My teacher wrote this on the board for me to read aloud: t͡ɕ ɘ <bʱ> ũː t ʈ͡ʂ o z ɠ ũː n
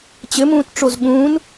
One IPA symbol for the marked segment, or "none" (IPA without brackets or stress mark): m